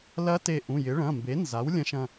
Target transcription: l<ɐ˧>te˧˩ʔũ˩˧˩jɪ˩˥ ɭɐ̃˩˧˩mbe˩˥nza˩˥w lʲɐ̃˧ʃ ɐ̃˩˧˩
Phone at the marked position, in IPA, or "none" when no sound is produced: ɐ˧˥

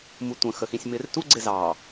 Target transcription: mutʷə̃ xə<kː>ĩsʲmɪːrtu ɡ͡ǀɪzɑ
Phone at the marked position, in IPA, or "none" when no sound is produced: x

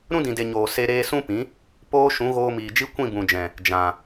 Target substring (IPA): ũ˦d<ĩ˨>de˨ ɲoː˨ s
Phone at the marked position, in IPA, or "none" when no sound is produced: ĩ˨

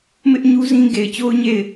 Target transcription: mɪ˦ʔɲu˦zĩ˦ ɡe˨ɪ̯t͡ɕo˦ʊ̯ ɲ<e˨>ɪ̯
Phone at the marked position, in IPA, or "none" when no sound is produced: e˦˨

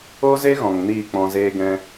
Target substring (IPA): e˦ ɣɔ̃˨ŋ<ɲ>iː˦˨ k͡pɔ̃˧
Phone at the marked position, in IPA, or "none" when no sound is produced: n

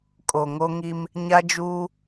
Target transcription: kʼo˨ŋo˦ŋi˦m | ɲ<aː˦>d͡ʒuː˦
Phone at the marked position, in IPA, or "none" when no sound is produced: a˦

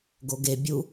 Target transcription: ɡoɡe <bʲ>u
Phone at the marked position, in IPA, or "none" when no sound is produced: bʲ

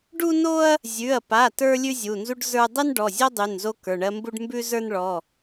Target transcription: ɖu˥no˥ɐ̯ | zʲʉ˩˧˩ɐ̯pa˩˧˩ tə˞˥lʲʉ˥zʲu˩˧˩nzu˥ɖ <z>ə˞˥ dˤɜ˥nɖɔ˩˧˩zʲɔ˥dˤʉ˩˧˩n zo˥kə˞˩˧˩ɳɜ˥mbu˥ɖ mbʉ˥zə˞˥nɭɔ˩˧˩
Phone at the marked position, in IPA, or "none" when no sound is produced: z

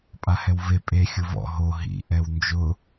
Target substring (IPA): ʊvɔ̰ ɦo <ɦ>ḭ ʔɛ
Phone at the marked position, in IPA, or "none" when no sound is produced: ɦ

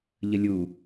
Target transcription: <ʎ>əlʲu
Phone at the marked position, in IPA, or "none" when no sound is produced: ʎ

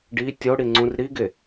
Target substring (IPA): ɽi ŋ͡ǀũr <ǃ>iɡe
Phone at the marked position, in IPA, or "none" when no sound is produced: ɾ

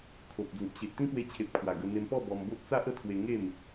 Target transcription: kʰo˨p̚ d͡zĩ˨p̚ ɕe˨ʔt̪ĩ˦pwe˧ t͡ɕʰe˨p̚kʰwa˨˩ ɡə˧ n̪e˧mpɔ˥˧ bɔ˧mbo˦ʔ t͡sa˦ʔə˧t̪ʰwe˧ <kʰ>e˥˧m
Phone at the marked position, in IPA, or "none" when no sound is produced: ŋ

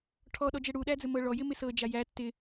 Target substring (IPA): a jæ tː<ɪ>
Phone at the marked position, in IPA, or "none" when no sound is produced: ɪ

